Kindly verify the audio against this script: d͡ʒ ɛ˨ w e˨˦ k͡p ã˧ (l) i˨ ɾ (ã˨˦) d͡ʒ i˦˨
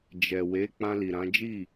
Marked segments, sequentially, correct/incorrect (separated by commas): correct, correct